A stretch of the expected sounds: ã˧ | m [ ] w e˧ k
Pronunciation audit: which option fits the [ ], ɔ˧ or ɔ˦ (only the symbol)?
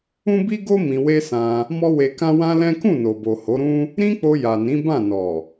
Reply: ɔ˦